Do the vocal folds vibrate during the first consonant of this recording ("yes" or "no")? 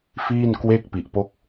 no